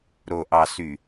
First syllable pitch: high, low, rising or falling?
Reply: low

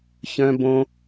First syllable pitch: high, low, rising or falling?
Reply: high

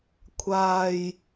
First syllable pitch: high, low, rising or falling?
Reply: low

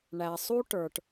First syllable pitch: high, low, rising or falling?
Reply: low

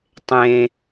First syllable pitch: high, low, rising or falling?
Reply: low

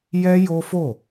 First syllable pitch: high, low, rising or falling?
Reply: high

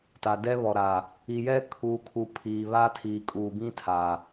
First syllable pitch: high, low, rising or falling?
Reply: low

